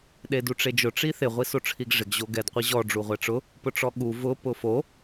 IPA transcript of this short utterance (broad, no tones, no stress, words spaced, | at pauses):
ɗeduʈ͡ʂed͡ʒʊ ʈ͡ʂiθɪ ʁʷisoʈ͡ʂʰiɡʐɪɡ ʑoɡɛd qʷiʑɔ ɖ͡ʐuʁʷɛʈ͡ʂʊ | pʊʈ͡ʂɔɠu vʊ pʊfo